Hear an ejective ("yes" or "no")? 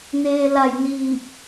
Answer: no